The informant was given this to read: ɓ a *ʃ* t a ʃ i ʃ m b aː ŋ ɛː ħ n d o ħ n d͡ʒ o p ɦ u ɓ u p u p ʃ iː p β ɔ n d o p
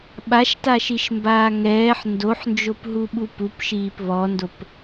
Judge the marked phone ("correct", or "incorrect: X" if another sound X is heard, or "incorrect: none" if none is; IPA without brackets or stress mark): correct